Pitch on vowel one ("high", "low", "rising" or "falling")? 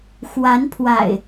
rising